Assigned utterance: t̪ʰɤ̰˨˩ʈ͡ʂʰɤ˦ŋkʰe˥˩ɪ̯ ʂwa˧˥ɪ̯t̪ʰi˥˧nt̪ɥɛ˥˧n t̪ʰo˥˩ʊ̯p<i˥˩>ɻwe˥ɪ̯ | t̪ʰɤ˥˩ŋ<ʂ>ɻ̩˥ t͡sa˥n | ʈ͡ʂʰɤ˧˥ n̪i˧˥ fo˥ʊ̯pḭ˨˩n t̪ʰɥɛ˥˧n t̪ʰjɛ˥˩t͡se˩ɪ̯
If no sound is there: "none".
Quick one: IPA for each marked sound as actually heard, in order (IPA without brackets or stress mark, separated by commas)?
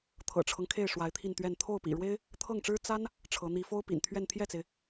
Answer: ḭ˨˩, ʈ͡ʂ